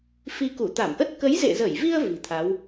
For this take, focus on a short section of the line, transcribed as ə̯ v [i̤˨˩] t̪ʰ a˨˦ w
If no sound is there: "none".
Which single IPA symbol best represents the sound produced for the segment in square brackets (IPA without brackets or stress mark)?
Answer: i̤˨˩